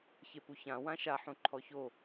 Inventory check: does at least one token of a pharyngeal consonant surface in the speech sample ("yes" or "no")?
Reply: yes